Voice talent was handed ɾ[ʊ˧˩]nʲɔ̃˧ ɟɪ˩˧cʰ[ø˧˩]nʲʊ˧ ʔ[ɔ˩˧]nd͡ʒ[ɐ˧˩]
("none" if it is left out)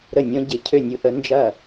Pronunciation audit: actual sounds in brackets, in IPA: ə˧˩, ø˧˩, ə˩˧, ɐ˧˩

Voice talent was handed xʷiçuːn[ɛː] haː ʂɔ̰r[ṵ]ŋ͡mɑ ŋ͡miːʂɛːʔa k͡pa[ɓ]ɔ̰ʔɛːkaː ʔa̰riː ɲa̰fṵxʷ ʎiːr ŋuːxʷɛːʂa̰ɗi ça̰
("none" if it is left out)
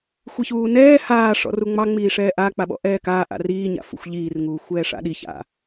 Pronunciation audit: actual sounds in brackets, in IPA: ɛː, u, ɓ

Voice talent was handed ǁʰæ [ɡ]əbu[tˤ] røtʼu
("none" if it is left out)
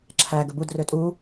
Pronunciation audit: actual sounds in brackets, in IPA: ɡ, d

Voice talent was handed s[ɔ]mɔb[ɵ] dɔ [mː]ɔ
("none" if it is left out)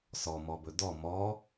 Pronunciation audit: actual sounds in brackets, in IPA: ɔ, ɵ, m

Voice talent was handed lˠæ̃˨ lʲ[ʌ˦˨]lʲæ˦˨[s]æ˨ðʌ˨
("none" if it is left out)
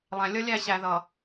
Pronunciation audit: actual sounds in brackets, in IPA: ʌ˦, ɕ

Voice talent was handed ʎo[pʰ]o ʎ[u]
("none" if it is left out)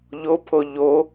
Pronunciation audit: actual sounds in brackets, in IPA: pʰ, o

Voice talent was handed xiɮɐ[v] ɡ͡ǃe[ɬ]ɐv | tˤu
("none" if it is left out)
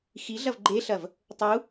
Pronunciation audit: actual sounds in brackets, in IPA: v, ɬ

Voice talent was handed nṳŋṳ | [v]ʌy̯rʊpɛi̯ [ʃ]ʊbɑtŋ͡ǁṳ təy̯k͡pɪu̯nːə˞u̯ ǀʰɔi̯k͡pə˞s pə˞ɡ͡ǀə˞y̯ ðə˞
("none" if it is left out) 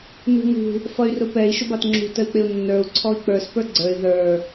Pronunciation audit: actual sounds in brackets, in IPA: f, ʃ

